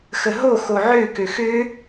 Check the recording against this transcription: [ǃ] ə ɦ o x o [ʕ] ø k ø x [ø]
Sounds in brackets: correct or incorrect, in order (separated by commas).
incorrect, correct, correct